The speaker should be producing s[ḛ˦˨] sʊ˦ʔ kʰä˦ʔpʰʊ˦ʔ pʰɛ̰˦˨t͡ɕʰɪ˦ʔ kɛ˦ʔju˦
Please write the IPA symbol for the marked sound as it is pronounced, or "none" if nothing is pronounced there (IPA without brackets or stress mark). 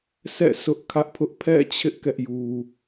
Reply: ɛ̰˦˨